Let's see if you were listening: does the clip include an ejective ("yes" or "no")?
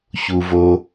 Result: no